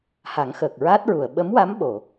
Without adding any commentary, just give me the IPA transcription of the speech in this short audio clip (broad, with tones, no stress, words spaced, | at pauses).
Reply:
ha˨˩˦ŋxəː˨˩k̚ ɹaː˦˥t̚ɹu˨˩˨ə̯ ɓə˧˥mwa˧˥m ɓo˨˩˨